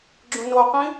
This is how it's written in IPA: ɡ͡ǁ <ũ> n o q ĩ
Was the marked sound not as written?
no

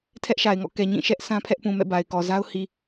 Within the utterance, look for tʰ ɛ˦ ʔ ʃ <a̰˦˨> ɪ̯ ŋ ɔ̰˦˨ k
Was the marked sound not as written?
yes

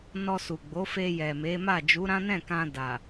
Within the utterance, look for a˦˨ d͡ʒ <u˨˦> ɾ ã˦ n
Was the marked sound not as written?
no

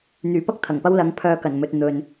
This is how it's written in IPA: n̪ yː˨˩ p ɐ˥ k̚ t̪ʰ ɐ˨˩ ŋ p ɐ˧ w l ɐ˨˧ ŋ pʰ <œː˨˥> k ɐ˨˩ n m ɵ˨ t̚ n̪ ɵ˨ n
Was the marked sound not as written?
yes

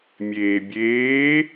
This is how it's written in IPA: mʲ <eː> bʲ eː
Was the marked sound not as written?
no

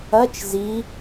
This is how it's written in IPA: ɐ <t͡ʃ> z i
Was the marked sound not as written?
no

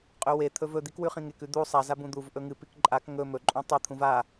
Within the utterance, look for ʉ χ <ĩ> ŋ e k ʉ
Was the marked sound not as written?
no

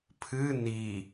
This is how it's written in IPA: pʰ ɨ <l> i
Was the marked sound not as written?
yes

